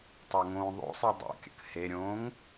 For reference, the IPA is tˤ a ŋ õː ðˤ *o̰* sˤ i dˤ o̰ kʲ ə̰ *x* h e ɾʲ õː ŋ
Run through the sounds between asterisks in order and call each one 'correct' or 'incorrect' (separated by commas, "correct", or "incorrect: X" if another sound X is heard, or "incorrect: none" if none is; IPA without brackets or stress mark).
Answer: correct, incorrect: k